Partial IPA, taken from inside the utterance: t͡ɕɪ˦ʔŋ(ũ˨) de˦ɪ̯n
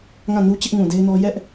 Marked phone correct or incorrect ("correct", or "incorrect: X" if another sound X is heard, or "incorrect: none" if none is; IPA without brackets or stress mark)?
correct